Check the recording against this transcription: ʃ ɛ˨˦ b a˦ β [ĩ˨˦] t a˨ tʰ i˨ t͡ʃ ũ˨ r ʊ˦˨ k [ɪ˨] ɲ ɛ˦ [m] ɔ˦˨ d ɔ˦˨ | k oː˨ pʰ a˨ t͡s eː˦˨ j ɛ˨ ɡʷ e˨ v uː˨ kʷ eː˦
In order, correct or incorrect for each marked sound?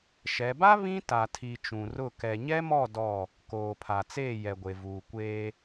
incorrect: ĩ˦, incorrect: ɛ˨, correct

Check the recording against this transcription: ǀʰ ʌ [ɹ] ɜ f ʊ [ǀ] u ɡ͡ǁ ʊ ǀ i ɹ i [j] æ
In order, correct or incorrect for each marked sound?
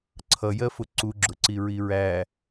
incorrect: j, correct, incorrect: ɹ

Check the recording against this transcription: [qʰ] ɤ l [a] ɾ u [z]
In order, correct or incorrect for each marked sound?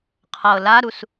correct, correct, incorrect: s

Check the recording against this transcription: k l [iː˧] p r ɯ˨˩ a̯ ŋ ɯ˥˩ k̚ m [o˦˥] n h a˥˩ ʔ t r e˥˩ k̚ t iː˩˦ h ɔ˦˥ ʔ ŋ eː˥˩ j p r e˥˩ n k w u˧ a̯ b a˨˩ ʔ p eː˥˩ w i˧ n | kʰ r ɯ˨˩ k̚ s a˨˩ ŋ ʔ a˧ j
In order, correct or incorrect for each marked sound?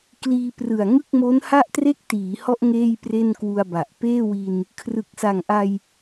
correct, correct

